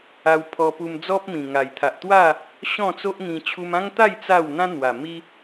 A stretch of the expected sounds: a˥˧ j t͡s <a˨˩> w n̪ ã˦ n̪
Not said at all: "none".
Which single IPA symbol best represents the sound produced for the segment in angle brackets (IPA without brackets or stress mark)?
a˥˧